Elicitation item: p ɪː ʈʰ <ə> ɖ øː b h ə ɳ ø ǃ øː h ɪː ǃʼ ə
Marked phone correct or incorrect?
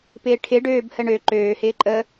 incorrect